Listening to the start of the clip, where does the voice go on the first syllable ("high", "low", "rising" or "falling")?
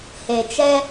low